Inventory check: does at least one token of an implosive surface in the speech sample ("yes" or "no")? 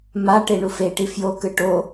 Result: no